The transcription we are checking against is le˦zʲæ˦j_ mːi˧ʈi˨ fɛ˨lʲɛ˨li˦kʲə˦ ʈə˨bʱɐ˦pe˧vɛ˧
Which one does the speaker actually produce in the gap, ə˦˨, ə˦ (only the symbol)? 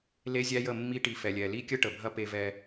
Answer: ə˦˨